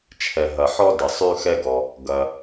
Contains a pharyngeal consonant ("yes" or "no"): yes